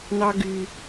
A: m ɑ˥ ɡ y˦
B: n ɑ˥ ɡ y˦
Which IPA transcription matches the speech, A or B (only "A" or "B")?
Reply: B